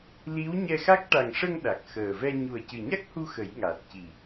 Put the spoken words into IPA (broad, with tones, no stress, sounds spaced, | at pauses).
l i˧˥ w ɲ ɛ˧ x a˦˥ k̚ ʈ a˨˩ ŋ ʂ ə˧ ŋ ɗ a˨˩ k̚ x əː˨˩ v ɛ˧ ɲ u˨˩ ə̯ c ɨ˨˩ ɲ a˦˥ k̚ h u˧ x ə˨˩˦ j ŋ a˨˩ t̚ c i˨˩